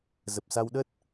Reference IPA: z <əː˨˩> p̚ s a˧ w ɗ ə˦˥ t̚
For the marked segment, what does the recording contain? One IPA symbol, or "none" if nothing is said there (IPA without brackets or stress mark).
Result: ə˨˩